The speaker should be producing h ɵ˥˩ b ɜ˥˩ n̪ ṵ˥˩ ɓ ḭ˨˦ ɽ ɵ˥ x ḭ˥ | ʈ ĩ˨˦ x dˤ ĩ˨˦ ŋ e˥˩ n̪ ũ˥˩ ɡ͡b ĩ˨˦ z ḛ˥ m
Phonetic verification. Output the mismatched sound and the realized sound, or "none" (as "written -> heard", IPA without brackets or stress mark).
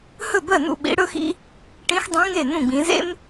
none